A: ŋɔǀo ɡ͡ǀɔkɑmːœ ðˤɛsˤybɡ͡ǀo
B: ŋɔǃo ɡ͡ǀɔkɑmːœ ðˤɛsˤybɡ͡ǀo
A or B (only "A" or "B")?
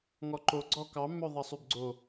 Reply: B